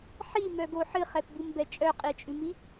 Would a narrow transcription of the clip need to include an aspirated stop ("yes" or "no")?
no